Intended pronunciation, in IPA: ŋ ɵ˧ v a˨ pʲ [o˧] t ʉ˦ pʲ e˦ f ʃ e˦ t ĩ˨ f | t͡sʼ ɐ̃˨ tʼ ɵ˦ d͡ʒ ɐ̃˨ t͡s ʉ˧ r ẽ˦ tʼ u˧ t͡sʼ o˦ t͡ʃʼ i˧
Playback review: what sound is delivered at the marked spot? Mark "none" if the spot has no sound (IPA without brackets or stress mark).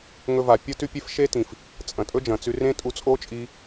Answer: o˦